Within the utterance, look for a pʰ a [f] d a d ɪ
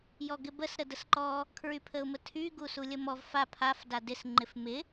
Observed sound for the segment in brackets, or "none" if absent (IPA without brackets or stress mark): f